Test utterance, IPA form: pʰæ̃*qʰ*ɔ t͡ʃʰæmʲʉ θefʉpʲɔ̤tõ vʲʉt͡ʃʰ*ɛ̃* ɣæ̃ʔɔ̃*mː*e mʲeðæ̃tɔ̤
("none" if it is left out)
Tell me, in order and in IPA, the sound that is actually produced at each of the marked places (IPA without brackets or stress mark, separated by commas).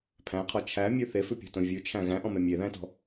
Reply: qʰ, æ̃, m